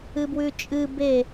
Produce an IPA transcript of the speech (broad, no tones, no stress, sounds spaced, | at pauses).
ɨ b w ʉ t͡ʃʼ ɨ b e